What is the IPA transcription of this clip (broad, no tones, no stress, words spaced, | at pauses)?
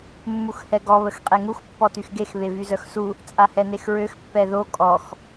mːuxhɛɡɔ βəxqʼeŋux pːɔtyxɡex βevyzœxsu | t͡sʼahɛnexɹøx pːɛðo kʼɔx